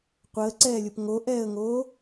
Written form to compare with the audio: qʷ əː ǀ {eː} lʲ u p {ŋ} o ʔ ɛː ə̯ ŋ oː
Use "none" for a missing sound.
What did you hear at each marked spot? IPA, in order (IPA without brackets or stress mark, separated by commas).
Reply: ɛː, ŋ